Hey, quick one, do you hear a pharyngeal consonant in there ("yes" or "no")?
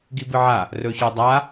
yes